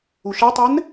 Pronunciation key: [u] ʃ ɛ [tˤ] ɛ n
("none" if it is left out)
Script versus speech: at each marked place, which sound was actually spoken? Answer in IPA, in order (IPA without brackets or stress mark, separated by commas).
u, tˤ